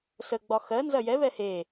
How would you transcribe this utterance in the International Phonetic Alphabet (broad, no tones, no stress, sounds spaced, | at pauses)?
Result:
s ə ɡ͡b ɒ x ɜ n z ɐ j ɛ β ɛ h e